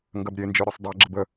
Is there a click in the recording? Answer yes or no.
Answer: yes